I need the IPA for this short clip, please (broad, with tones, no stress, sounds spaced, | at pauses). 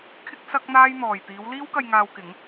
kʰ ɪ˥ k̚ s ɐ˥ k̚ n̪ aː˥ j n̪ ɔː˨ j t̪ iː˨˧ w l iː˥ w k ɐ˧ j ŋ aː˧ w k ɪ˨˥ ŋ